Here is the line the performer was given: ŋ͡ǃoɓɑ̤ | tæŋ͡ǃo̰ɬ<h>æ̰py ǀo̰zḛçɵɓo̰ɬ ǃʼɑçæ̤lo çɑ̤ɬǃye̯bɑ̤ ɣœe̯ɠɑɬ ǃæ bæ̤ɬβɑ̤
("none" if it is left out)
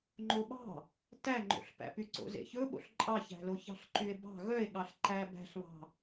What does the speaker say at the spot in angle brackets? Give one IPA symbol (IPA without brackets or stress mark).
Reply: p